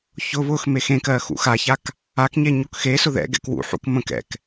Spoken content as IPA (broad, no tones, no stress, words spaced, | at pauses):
çʊ βʊx mexẽkɜ xṵxaçak | akɲe ɲokxesʊ ðɛ̰ ɡɛ̰kwṵħṵk mə̃k ɛ̰k